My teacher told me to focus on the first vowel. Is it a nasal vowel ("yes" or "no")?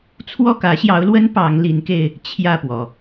no